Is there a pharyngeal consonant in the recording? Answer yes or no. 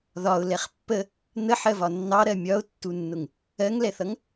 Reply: yes